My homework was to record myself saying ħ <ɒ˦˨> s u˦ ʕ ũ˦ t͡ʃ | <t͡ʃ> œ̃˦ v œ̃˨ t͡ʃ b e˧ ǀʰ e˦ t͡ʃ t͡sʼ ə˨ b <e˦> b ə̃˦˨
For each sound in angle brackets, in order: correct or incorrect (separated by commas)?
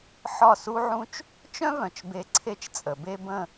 correct, correct, correct